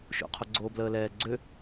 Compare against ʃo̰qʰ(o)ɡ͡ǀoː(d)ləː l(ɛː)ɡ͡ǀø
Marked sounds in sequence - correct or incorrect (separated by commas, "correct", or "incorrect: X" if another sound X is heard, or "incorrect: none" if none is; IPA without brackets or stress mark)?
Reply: correct, incorrect: b, correct